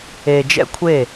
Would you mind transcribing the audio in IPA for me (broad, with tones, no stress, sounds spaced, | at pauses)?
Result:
e˨ d͡ʒ ɛ̰˦ kʷʰ e˦˨